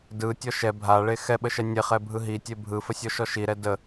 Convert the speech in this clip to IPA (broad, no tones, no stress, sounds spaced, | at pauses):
d ɯ tʲ ɔ ʃ ɛ bʱ a ɭ e x ɛ ɓ ə ʃ ɛ nʲ e χ ɛ bʱ ɯ ɦ i tʲ e bʱ ɯ f ə sʲ ɔ ʃ ɔ ʃ i ɾ ɛ d ə